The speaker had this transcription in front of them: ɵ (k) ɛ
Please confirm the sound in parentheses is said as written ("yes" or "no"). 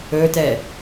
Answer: no